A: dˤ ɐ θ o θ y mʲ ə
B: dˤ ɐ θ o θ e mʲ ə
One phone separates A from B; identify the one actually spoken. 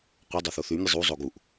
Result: A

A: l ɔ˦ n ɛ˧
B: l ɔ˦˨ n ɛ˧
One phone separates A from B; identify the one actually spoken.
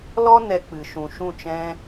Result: A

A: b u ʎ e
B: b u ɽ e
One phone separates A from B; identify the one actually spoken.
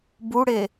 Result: B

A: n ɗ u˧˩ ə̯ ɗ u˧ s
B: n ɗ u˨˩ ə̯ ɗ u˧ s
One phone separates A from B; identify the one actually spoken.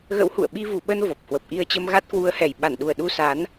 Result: B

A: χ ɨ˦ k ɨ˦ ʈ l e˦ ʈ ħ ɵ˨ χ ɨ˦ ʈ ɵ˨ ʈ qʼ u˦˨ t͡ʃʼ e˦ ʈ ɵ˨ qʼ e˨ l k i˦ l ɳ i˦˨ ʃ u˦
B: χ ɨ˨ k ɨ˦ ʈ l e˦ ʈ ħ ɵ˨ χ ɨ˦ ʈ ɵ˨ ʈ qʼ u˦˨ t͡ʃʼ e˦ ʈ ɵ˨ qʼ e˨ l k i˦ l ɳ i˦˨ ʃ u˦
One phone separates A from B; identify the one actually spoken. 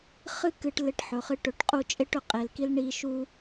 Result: A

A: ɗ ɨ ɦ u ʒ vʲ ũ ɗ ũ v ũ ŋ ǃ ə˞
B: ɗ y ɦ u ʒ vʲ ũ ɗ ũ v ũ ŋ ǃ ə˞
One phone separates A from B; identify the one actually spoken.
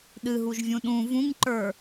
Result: A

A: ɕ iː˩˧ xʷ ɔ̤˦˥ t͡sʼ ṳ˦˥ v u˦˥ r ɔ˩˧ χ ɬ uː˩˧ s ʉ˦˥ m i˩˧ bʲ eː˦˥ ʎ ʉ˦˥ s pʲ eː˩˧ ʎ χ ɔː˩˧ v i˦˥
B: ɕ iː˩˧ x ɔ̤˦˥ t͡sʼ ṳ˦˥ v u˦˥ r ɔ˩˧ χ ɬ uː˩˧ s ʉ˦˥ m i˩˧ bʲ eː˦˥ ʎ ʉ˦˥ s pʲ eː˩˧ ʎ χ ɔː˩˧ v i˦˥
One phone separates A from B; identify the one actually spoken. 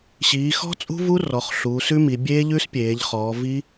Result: B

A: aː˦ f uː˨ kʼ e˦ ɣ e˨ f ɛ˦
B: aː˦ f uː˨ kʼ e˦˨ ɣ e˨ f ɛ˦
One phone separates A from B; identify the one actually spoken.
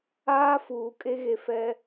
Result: A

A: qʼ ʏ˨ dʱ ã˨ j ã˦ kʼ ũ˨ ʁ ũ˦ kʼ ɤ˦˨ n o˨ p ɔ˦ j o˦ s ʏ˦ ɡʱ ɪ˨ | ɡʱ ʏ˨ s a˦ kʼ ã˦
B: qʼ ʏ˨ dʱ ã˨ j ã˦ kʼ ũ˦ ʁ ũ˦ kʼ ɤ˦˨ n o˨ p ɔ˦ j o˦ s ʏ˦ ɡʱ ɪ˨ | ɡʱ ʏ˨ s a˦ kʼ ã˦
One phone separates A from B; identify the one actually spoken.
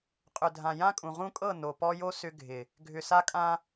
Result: A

